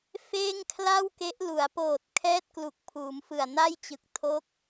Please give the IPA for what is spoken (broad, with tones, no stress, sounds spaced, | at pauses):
f eː˥˩ ŋ kʰ l a˥˩ w k e˦˥ ʔ l u˩˦ a̯ p oː˨˩ t̚ kʰ ɛː˥˩ t̚ k l u˨˩ k̚ pʰ uː˩˦ m f ɯ˨˩ a̯ n a˥˩ j t͡ɕ ɯ˨˩ k̚ tʰ o˦˥ k̚